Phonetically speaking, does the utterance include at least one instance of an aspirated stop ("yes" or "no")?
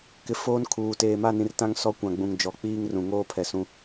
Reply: yes